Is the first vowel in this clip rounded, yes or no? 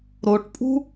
yes